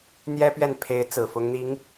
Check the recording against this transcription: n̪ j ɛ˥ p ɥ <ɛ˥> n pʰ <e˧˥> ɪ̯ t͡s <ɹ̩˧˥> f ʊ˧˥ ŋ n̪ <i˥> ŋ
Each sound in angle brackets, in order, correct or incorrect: incorrect: ɛ˥˩, correct, incorrect: ɹ̩˨˩, incorrect: i˧˥

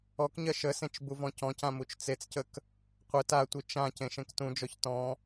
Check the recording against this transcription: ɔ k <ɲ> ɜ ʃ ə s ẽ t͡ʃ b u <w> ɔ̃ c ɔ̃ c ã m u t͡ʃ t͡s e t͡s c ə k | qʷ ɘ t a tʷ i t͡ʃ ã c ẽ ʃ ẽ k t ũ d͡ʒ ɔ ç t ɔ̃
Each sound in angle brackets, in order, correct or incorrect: correct, incorrect: v

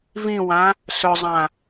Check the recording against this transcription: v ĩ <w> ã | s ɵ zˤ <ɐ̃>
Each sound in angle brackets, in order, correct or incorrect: correct, incorrect: ã

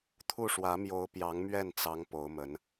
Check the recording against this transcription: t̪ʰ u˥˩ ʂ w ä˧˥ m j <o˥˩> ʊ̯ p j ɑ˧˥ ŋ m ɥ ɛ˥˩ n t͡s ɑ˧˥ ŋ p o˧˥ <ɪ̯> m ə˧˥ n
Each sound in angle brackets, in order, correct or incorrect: incorrect: o˧˥, incorrect: ʊ̯

